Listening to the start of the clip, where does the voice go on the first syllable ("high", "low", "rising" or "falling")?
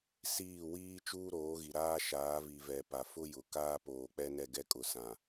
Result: falling